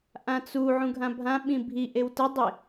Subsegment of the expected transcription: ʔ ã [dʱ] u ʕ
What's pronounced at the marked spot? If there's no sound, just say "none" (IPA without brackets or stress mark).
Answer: t͡s